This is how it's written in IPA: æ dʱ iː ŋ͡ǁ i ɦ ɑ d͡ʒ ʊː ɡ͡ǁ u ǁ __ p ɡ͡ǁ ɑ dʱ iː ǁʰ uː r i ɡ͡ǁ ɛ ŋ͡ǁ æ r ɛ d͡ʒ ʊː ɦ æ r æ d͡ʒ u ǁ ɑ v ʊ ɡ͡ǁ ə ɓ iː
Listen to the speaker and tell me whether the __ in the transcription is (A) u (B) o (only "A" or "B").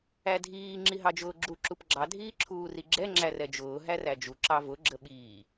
A